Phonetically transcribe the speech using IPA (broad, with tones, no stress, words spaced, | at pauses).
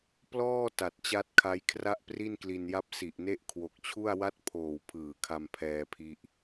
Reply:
plɔː˥˩ ta˨˩t̚t͡ɕa˦˥t̚kʰa˦˥j kʰra˥˩ʔpri˥˩nkli˧nja˥˩p̚ si˨˩ʔne˥˩ʔ kʰwo˨˩k̚t͡ɕʰu˥˩a̯ wa˥˩t̚pʰoː˨˩w pʰɯː˨˩kʰa˧m pʰɛː˧pʰi˦˥ʔ